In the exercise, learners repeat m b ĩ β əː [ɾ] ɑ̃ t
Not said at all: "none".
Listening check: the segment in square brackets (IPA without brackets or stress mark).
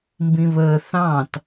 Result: θ